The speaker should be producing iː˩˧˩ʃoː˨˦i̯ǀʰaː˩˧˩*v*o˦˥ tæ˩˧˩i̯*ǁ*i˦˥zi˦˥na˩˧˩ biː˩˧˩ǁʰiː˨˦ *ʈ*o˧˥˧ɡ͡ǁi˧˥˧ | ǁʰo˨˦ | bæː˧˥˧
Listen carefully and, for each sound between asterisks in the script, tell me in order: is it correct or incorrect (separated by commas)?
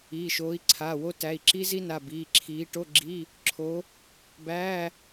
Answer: incorrect, correct, correct